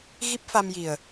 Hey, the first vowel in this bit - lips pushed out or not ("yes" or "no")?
no